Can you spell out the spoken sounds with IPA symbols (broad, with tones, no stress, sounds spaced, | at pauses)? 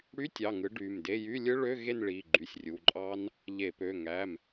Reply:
ɽ y˧˥˧ tʲ ɑ˩˧˩ ŋ ɯ˨˥ ɖ y˩˧˩ m d e˧˥˧ j y˧˥˧ lʲ ɯ˦˥ ɭ ø˧˥˧ ɣ e˥˧ n ɭ i˩˧˩ ɡ͡ǃ y˩˧˩ sʲ rʲ u˩˧˩ ǃʼ ɑ˦˥ n | ʎ e˧˩˧ p ø˩˧˩ ŋ æ˩˧˩ m